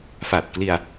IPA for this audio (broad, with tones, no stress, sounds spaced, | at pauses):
f a˨˩ t̚ k l i˧ a̯